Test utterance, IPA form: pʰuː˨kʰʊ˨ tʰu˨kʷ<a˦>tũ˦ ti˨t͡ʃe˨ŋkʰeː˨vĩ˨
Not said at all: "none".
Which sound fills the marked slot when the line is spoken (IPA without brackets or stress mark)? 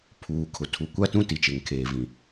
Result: a˦